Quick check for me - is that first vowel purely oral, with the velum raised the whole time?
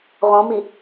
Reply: no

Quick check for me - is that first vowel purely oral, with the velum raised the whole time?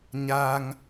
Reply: yes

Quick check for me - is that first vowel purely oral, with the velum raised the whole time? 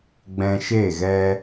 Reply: no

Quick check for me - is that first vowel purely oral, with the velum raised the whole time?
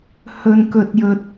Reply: yes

